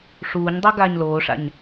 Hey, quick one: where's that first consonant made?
retroflex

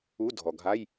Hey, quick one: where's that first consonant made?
tongue tip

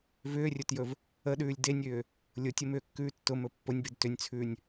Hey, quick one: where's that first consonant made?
lips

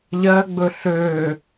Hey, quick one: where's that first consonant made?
palate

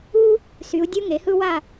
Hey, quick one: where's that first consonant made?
tongue tip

